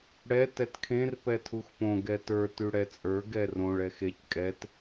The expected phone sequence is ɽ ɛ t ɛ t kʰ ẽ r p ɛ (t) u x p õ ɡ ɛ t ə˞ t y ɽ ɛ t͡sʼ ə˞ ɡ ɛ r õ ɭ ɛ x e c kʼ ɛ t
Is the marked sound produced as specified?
no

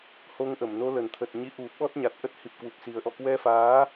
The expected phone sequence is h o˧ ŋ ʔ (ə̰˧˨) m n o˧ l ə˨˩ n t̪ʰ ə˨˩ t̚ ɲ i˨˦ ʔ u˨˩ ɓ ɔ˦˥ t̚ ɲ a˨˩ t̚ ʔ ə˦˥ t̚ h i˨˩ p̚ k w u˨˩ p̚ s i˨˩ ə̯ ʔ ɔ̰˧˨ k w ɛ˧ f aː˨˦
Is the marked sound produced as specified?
no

